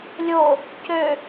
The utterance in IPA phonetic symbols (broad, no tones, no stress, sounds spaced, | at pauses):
lʲ o | c ø